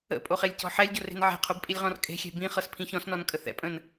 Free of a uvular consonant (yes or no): no